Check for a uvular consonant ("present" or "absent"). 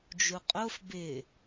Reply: present